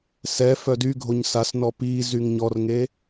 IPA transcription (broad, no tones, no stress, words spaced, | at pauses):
sɛ fœdyɡʱoɲ sasnɔ pizyŋ ɲɔrŋe